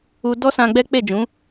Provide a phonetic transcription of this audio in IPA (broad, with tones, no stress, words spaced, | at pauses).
u˧dɔ˦sã˧ɡ͡bɛ˦ k͡pe˦˨d͡ʒũ˨˦